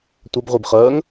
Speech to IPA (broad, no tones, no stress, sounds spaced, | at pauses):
tʷ ʌ b ʁʷ i b χ ɜː ŋ